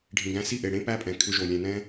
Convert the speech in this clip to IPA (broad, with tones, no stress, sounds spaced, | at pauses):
ɖʱ ĩ˨ ɡ æ̃˧ s i˦˨ ʔ e˨ ɽ ẽ˦ p æ˦ pʼ ɛ̃˨ kʰ ʏ˧ ʒ o˨ lʲ ɛ̃˨ n ɛ̃˧